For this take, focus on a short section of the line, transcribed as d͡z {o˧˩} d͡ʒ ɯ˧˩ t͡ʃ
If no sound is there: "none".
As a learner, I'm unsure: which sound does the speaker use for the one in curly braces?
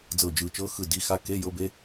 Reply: ɤ˧˩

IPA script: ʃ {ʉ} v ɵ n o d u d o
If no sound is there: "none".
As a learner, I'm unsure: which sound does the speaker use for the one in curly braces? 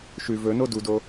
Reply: ʉ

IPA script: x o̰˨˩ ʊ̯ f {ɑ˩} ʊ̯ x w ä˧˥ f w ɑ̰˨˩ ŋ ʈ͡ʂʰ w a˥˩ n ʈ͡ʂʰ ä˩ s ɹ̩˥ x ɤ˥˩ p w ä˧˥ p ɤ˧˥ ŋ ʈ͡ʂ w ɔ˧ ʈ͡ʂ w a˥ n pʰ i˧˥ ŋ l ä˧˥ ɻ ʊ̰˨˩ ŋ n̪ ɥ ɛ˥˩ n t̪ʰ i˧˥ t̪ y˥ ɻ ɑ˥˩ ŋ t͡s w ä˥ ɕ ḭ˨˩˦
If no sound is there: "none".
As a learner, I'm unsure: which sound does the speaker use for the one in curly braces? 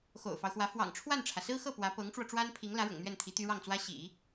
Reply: ɑ˦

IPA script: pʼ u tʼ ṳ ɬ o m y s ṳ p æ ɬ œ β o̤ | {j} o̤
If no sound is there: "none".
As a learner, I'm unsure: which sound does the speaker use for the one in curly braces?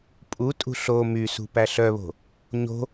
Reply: ɲ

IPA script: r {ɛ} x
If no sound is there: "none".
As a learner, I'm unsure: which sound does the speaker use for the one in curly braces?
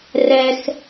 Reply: ɛ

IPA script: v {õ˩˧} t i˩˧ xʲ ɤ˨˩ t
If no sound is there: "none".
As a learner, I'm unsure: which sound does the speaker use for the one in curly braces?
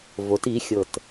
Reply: o˩˧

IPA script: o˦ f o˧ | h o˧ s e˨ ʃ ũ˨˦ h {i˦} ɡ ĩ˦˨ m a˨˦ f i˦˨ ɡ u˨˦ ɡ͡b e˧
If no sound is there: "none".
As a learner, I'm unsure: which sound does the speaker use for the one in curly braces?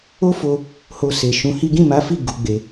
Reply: i˦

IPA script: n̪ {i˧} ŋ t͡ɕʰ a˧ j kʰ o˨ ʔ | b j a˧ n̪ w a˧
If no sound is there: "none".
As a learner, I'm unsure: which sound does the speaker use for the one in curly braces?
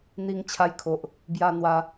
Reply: i˧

